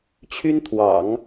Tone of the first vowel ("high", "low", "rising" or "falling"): high